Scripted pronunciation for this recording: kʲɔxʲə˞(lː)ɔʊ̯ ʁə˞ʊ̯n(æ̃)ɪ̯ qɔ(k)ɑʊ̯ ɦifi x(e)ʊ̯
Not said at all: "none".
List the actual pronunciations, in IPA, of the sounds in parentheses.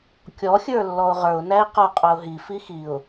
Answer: lː, æ, qʼ, i

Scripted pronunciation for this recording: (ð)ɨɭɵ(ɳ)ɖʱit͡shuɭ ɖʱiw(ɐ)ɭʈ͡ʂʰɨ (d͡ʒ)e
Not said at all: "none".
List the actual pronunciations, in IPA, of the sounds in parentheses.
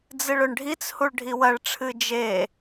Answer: d͡z, ɳ, ɐ, d͡ʒ

